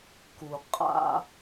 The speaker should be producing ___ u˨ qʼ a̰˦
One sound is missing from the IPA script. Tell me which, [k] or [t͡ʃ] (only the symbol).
k